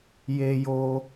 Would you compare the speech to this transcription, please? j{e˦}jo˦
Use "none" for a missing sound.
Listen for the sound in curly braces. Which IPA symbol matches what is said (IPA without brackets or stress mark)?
e˦